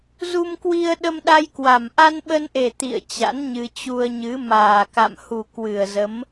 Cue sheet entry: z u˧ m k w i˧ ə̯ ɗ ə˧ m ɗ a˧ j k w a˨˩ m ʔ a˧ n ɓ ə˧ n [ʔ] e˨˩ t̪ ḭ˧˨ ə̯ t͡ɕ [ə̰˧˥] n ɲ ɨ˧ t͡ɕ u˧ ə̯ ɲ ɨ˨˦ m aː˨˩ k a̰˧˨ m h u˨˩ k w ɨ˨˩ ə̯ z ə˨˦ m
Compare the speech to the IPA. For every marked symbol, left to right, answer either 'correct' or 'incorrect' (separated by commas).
correct, incorrect